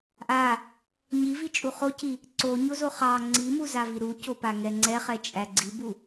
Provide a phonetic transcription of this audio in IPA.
ʔ a | ɲ i v i t͡ʃʼ u χ o c i | ǀ o ɲ o z o χ ɑ ŋ͡ǀ i m u z a v i ɾ u c o p a ŋ ɛ ŋ͡ǀ ɛ χ ɛ t͡ʃʼ æ ɡ͡ǀ i b u

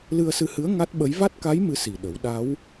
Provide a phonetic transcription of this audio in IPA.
l ɨ˧ ə̯ s ɨ˧ h ɨ˧˥ ə̯ ŋ a˦˥ t̚ ɓ ə˧˥ j v a˦˥ t̚ k a˧˥ j m ɨ˧˥ s i˨˩ ɗ ə˨˩˦ w ɗ a˧˥ w

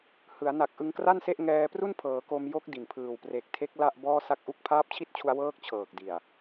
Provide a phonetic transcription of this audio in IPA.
h ɯ˩˦ a̯ n a˨˩ k̚ ʔ ɯ˧ ŋ k r a˥˩ n s e˥˩ ʔ ŋ ɛː˧ p r u˥˩ n pʰ ɤː˩˦ k o˧ m j o˦˥ k̚ d i˨˩ n pʰ ɯː˨˩ w p r e˨˩ k̚ tʰ e˦˥ k̚ l a˥˩ ʔ b ɔː˥˩ s a˥˩ k̚ ʔ u˥˩ k̚ pʰ aː˦˥ p̚ t͡ɕʰ i˥˩ t̚ t͡ɕʰ u˧ a̯ w ɤː˥˩ k̚ t͡ɕʰ ɤː˨˩ k̚ d i˨˩ a̯

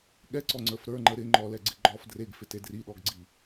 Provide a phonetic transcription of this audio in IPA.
ɠ ɛ ǀ ɔ ŋ͡ǀ ə˞ f ɾ ə˞ ŋ͡ǃ ə ɾ ɪ ŋ͡ǃ ɔ l ɛ ɡ͡ǀ ɪ ɡ͡ǃ ɔ f d r e ɡ f ɪ t e d r i ɗ ɔ ɡ ɡ͡ǀ i

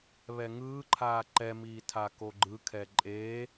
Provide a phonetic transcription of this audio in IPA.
β ɛ ŋ ɯː ǃʰ aː ǃ ɛ m iː tʰ a k o ɡ͡ǃ ɯ kʰ ɛ ǃʼ e

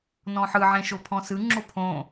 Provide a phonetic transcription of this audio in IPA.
n ɔ̃ ħ ɯ ʕ ẽ ʃ o pʰ ɔ̃ s ɯ ŋ͡ǁ o pʰ õ

